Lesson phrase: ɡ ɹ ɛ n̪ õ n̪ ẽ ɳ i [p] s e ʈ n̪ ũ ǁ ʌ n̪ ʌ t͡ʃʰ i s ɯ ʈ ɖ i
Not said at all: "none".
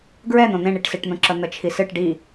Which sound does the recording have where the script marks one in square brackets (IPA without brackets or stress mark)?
ʈ